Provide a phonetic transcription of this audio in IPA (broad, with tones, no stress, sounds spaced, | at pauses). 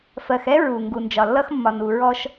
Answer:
f ɜ˨ x ɛ˦ ɹ u˨ ŋ ɡ u˨ n d͡ʒ ɒ˨ lː ʌ˦ x mː ɒ˨ n u˨ ɹ ɔ˦ ʃ